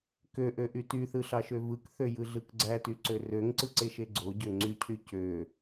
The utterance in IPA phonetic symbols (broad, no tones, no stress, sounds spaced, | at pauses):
k ø ʔ ø ʔ y t y θ ɯ ɬ ɑ ʃ ø v ɯ k θ ø j ɯ ɮ ɯ k ɡ͡ǀ æ t y ǀ ø r ø ŋ ǀ ɯ ǀ e ʃ e ɡ͡ǀ o ɟ ø ŋ͡ǀ y cʰ y c ø